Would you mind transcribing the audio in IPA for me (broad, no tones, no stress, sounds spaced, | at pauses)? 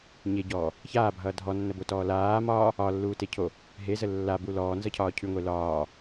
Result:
ɲ e ɟ ɔː | ç aː bʱ ʌː dʱ ɔ nː ə b o t ɔː l aː m ɒ | ɒ lː uː t e cʰ o | ɦ e z ə lː a b u l ɔː n z ʌ cʰ ɒː cʰ ʉ ŋʷ e l ɒː